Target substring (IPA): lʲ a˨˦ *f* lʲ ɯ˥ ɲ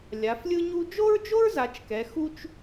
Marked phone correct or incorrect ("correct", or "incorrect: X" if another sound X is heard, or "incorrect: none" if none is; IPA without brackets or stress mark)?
correct